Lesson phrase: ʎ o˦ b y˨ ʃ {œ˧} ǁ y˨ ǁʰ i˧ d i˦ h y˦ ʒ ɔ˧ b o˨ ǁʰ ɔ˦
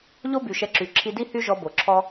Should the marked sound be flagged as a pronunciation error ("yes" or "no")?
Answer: yes